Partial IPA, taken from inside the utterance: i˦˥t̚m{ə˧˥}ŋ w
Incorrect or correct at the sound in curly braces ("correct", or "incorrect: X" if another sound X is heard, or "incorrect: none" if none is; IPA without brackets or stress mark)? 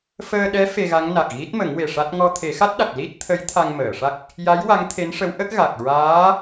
incorrect: ə˨˩˦